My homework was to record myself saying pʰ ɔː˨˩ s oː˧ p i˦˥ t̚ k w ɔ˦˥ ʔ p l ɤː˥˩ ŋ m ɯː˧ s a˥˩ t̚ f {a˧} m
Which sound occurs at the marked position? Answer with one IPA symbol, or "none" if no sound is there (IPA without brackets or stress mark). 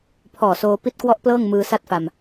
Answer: a˧